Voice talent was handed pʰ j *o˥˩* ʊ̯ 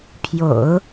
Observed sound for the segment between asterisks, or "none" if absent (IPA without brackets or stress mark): o̰˨˩˦